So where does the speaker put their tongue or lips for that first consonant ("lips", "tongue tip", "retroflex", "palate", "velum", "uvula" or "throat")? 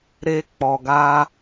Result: tongue tip